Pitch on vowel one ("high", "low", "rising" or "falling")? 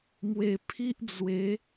low